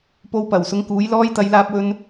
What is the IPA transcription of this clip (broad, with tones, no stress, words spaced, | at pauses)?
po˨w pɐ˨˩wsʊ˨˥ŋkuː˨˥j lɔː˧jt̪ɐ˨˧jlaː˧p̚wɵ˧n